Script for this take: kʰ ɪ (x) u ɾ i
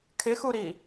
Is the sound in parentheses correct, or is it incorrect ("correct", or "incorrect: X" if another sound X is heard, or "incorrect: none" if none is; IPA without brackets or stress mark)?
correct